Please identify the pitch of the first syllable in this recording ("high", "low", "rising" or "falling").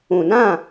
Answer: low